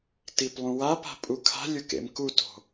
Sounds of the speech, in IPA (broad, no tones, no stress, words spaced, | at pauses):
tiplˠũwapa̤ pʼukʰa̤lʲʊ kḛmkuto̤